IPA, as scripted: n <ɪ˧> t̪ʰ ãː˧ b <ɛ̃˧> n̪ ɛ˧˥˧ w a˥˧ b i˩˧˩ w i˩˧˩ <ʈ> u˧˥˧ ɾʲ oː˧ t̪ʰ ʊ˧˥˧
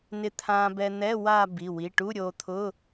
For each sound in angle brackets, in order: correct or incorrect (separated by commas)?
correct, incorrect, correct